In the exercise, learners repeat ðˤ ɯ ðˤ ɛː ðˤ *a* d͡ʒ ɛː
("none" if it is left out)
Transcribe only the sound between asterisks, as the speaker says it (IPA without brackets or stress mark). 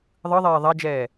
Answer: a